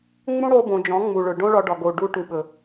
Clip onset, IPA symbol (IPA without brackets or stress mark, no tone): ŋ͡m